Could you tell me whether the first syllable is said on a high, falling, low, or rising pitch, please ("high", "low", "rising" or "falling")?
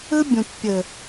high